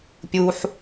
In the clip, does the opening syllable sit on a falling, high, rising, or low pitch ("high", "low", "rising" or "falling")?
low